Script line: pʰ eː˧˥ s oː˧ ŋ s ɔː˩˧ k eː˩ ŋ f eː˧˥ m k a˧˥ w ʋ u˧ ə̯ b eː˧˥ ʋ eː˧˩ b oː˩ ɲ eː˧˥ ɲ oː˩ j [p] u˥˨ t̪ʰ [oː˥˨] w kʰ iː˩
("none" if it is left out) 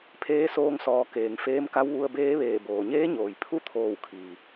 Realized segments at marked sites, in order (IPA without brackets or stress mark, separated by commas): pʰ, oː˧˩